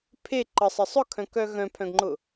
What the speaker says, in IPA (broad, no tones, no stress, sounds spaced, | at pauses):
pʰ e ǃ ə sˤ ə sˤ ʊ kʰ œ̃ k œ ɣ œ̃ pʰ œ̃ ɡ ŋ͡ǃ ʊ